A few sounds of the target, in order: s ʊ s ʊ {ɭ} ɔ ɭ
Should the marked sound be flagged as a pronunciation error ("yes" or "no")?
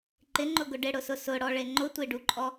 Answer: yes